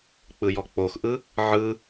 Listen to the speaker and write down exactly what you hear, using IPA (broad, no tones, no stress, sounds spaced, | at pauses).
k͡p ɯ j ɔ k͡p o x ʔ ɯ | ʕ ɯ